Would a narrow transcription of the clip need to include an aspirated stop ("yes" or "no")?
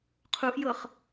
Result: yes